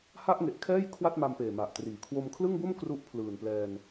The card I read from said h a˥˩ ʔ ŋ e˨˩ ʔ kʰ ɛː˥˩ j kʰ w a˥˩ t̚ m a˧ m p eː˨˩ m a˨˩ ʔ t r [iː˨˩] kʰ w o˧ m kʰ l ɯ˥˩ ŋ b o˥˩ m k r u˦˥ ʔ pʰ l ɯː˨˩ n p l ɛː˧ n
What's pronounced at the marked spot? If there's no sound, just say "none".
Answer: iː˨˩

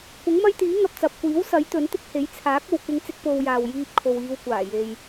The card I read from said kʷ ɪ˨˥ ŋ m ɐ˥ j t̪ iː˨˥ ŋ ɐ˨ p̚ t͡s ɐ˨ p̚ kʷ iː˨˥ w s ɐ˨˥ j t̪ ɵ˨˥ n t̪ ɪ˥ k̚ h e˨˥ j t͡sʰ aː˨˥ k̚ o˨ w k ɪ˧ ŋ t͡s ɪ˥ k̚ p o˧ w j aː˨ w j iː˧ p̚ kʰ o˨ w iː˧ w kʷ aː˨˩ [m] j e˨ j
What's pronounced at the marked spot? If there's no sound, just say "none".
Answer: none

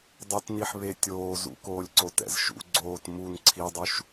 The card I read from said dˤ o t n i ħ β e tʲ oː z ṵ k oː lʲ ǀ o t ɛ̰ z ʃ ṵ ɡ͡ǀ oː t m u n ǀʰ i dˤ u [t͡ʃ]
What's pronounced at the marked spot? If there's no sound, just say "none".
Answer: ʃ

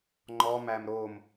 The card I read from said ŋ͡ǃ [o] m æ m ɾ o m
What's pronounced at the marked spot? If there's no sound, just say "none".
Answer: ɔ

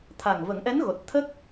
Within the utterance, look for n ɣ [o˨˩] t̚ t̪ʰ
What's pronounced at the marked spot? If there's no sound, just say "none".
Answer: o˨˩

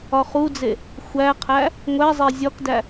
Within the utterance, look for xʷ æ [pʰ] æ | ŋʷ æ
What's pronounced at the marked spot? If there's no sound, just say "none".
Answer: qʰ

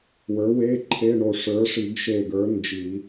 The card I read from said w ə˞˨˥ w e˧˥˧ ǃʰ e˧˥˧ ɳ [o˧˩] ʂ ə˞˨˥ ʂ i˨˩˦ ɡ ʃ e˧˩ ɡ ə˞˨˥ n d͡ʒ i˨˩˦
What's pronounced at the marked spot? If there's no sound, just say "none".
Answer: o˧˩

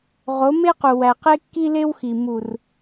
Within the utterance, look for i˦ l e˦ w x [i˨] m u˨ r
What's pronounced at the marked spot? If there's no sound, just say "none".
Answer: i˨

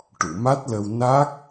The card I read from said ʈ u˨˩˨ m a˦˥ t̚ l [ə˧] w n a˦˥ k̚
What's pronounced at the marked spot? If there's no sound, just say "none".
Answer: ə˧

